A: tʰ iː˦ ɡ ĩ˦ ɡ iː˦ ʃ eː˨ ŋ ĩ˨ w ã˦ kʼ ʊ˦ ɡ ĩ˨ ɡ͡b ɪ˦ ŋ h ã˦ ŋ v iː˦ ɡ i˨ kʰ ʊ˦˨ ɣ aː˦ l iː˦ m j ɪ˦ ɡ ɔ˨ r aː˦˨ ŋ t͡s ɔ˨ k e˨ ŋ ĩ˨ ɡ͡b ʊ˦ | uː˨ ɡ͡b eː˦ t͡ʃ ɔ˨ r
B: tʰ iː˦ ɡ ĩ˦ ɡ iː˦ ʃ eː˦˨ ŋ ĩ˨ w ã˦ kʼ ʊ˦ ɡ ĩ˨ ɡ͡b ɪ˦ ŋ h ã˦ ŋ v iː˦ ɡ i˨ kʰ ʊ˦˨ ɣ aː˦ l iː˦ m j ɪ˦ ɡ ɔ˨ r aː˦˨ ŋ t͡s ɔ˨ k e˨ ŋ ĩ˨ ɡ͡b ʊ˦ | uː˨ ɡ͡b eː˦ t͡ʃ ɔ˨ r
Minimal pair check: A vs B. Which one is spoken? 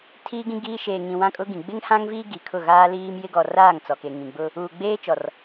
A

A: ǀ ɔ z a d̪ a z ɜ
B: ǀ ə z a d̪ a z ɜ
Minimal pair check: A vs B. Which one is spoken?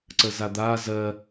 B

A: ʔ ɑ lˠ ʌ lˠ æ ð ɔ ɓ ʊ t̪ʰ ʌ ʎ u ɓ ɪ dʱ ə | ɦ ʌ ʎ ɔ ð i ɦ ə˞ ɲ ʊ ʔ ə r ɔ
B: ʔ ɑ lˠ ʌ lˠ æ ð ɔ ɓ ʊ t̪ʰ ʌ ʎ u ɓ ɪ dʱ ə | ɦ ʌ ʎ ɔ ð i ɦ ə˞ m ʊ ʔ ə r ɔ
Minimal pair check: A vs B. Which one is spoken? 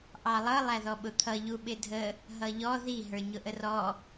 A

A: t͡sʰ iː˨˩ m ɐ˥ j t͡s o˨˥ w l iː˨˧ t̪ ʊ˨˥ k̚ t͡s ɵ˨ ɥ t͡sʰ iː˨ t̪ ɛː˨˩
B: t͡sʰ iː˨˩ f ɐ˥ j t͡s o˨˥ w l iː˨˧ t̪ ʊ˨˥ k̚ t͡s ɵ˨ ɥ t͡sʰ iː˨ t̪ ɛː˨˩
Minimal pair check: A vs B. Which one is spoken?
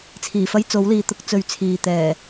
B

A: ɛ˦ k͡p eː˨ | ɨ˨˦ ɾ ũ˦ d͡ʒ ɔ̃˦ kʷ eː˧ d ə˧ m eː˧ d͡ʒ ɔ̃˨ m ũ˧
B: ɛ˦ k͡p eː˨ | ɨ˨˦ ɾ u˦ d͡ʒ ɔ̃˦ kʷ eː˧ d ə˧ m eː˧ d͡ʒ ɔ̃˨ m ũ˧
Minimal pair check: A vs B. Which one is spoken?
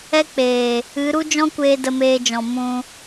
B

